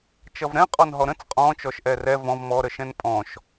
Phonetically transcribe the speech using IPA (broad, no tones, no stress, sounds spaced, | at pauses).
t͡ʃ ʌ v ɾ ɛ̃ qʼ ɔ n ɦ ɔ ɾ ə̃ t͡s qʼ ɔ̃ t͡ʃ ɔ ʃ ʔ ɛ r ɛ v ɔ̃ v m ɔ ɾ ə ʃ ɛ̃ n pʼ ɔ̃ ʃ